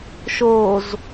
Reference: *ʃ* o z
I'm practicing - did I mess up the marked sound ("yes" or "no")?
no